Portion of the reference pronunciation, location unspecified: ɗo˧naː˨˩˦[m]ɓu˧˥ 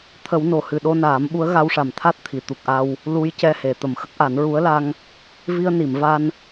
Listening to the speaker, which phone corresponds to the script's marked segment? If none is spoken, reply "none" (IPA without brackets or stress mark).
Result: m